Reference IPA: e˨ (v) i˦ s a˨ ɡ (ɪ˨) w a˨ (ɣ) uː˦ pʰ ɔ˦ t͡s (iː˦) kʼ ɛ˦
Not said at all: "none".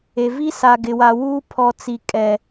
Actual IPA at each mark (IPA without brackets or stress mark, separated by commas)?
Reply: v, ɪ˨, w, i˦